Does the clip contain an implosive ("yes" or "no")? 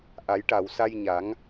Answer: no